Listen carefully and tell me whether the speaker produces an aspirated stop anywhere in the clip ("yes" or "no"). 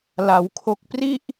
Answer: yes